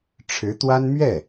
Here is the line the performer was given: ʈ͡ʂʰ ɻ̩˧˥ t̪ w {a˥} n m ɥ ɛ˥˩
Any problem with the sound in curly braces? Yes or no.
no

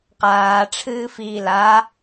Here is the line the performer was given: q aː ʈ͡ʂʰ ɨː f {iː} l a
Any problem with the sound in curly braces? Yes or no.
no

